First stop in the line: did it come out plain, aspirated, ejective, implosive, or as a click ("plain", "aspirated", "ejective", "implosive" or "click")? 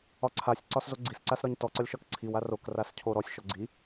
click